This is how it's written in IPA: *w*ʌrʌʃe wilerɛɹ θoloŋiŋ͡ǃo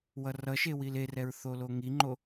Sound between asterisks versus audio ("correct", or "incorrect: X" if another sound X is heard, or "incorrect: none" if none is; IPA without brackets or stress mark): correct